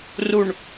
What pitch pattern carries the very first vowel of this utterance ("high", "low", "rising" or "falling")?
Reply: low